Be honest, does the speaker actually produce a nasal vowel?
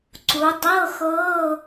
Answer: no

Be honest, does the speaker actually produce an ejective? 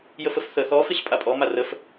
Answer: yes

